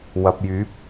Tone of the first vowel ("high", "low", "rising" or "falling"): low